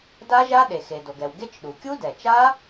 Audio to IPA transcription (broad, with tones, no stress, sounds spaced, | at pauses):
d a˦˥ ʒ a˦˥ ɗ e˩ x e˩ d o˩ ɡ ɛ˩ w ɡ e˦˥ t͡ʃ ɗ u˩ kʲ u˦˥ d ɛ˩ t͡ʃ a˦˥